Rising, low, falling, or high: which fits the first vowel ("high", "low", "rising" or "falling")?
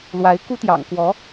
rising